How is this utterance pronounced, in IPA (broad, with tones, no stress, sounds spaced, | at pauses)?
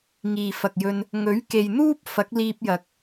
ŋ iː˨ f ɐ˨ k̚ j ɵ˧ n | ŋ ɵ˨˥ ɥ k e˨ j n̪ uː˥ p̚ f ɐ˨˥ k̚ l iː˧ p̚ j ɐ˨ k̚